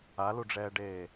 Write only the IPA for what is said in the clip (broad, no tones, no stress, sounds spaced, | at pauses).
a l u ɖ͡ʐ ɛː ɖ eː